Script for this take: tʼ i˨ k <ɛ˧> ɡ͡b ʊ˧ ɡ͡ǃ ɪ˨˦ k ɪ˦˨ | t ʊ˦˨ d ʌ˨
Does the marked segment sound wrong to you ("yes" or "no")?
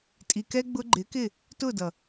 no